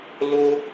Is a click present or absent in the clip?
absent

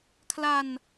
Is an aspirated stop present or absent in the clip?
present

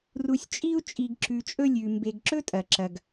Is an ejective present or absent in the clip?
present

